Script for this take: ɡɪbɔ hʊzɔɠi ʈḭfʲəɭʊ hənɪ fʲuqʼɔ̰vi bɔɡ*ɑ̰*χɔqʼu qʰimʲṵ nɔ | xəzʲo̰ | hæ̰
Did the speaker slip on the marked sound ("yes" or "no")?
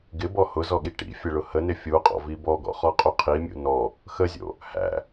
yes